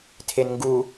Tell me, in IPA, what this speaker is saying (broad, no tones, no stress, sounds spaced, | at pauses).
tʰ e n ŋ ɡ u